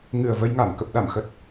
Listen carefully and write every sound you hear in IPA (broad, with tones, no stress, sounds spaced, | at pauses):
ŋ ɨ˨˩ ə̯ v ə˧ j ŋ a˧˩ m k ə˨˩ p̚ ɗ a˧˩ m x ə˨˩ t̚